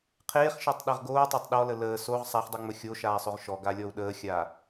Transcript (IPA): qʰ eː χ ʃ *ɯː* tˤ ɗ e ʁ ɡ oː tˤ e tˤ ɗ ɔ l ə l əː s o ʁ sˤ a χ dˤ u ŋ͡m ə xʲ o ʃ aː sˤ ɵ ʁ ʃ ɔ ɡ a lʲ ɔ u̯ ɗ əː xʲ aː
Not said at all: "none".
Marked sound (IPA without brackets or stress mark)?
əː